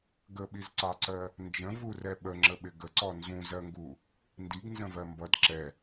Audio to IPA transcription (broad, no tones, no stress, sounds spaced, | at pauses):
ɡ ə ɓ i z ǀ ɑ ǀ ɜ | n d͡ʒ ə̃ v u r ɛ ɓ ə ŋ͡ǁ ə ɓ ɪ ɡ ə ǀ ɔ n z ũ z ɜ ŋ ɡ u | n d i ɡ n z ə̃ v ɜ m b ʌ d ǁ ɛ